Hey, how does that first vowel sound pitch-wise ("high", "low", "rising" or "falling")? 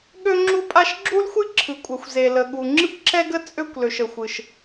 high